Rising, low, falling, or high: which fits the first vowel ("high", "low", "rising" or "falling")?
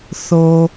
high